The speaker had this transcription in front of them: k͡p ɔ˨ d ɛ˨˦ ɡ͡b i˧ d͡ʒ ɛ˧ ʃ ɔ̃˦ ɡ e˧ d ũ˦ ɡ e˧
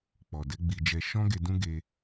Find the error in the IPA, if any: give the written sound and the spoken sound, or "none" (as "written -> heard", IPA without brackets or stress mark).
none